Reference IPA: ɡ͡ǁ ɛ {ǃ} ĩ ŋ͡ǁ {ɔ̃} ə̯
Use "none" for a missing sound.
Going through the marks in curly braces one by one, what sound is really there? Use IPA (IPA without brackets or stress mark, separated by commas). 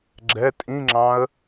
tʼ, ɑ̃